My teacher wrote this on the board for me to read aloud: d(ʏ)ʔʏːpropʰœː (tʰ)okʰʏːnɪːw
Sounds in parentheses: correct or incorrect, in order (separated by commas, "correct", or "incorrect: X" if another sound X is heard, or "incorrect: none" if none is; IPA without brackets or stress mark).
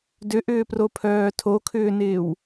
correct, correct